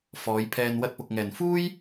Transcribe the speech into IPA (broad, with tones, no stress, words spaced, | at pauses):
fɔː˨˧jpʰɛː˧n wɐ˧t̚pʊ˨k̚ŋɛː˨˩n fuː˥j